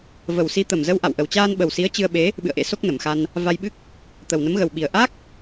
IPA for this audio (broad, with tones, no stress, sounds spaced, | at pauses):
v ə˨˩ w s i˨˦ t̪ ə˨˩ m z ə˧ w ʔ a̰˧˨ w ʔ ə˨˩ w t͡ɕ aː˧ n ɓ ə˨˩ w s i˨˦ ə̯ t͡ɕ ɨ˧ ə̯ ɓ e˨˦ | ɓ ɨ̰˧˨ ə̯ ʔ ḛ˧˥ s o˦˥ k̚ n ə˨˩ m x a˧ n | v a˧ j ɓ ɨ˦˥ k̚ | t̪ ə˨˩ w n ə˨˦ m ɣ ə˨˩ w ɓ i˨˩ ə̯ ʔ a˦˥ k̚